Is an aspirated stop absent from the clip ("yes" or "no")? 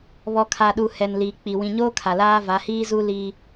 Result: no